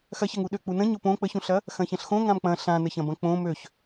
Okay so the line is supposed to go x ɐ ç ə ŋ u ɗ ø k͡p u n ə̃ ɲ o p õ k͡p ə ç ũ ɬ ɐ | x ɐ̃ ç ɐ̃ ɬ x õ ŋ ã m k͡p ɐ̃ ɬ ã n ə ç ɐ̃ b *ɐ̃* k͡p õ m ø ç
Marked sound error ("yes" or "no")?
no